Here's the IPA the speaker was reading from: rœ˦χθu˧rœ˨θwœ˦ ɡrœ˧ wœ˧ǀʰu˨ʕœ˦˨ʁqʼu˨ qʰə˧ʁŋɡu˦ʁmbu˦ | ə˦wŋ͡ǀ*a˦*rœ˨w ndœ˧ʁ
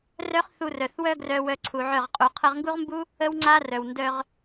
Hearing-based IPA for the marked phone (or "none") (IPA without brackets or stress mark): a˦